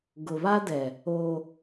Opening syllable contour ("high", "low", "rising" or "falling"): low